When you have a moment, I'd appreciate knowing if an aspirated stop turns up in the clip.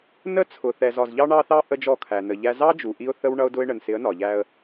yes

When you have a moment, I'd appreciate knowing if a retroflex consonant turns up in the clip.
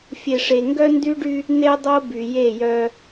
yes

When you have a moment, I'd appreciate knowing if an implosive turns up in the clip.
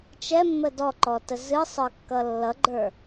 no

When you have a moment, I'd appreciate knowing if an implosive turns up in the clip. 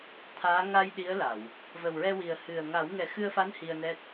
yes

